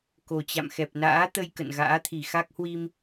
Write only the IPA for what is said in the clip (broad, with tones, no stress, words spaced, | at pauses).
ko˨˩t͡ɕa̰˧˨m xɛ˨˩p̚na̰ː˧˥t̪ə˧j kə̰˧˨nɣa̰ː˧˥t̪ʰi˧˩ xa˦˥k̚hwi˧m